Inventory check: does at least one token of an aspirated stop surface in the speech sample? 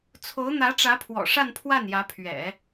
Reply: yes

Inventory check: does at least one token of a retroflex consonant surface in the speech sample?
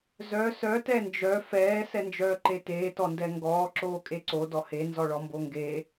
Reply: yes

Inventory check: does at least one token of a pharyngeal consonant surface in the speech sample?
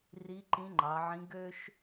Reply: yes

